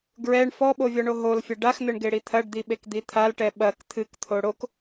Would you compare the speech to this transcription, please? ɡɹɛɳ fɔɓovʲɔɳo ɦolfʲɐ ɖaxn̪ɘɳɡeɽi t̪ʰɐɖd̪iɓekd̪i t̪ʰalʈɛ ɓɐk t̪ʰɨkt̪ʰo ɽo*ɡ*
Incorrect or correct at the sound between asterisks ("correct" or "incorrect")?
incorrect